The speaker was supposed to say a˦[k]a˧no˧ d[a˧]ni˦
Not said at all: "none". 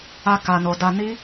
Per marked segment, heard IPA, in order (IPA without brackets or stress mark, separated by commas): k, a˧